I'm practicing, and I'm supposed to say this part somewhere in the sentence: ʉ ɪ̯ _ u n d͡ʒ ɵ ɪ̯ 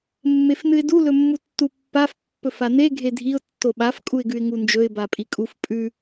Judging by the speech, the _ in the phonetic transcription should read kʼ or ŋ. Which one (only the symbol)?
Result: ŋ